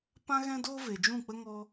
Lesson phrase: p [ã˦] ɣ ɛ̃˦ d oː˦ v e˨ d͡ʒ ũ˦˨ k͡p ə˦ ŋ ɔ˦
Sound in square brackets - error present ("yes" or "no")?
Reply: no